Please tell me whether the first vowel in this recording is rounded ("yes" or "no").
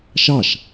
no